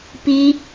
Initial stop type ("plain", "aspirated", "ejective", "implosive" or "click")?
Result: plain